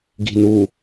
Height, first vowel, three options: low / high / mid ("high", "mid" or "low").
high